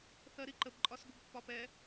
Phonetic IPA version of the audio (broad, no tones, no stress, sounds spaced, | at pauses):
θ ɜ ɾ i ǃ ə b ǃʼ ɒ s ɡ ʊ b pː ɒ p ɛ